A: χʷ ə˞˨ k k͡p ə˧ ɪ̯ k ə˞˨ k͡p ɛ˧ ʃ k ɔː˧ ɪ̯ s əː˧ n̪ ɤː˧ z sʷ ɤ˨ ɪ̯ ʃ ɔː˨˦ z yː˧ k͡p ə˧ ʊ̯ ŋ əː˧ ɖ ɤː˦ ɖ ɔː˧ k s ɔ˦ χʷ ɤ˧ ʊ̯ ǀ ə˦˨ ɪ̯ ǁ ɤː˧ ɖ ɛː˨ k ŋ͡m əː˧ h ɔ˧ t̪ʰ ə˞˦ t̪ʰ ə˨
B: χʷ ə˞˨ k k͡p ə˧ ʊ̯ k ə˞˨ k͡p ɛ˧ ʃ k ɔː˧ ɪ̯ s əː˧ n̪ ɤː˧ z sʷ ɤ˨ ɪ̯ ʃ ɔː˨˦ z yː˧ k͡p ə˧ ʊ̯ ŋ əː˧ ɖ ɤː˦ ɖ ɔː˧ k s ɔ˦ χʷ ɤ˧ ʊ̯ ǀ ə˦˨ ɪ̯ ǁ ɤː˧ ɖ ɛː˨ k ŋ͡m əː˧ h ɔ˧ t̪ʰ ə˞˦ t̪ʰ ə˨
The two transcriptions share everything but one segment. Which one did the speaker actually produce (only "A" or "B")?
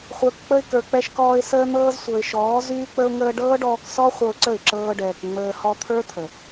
A